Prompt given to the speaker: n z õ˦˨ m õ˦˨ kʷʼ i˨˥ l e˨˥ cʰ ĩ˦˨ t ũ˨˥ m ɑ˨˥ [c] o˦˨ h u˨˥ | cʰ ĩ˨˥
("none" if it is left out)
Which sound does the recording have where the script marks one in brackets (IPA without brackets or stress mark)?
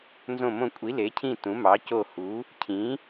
c